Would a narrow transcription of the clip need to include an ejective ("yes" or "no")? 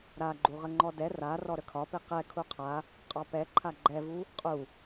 yes